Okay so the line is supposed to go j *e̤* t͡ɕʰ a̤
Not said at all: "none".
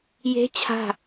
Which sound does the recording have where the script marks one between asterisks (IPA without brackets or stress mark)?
e̤